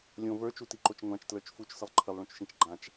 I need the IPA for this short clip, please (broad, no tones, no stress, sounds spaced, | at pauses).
lʲ õ v ə˞ t͡ʃ u t i ǃ o t͡ʃ ŋʷ ã t͡ʃ t l ə˞ t͡ʃ f u t͡ʃ s ə lˠ ǃʰ ə lˠ ɭ õ t͡ʃ ʃ ĩ t͡ʃ ɡ͡ǃ ã t͡ʃ